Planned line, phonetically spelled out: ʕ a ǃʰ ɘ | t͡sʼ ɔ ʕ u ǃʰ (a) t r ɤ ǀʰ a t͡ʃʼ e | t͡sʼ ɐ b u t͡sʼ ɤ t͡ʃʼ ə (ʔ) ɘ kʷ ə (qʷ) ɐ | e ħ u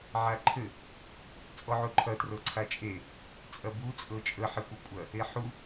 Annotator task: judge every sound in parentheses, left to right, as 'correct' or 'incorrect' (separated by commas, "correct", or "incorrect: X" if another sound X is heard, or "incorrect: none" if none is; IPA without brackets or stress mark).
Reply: incorrect: ɐ, incorrect: ħ, incorrect: kʷʼ